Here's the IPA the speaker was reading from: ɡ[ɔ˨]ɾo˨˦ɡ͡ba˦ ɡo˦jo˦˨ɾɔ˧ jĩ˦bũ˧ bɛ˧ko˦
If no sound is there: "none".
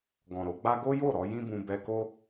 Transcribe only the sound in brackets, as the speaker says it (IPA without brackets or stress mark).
ɔ̃˨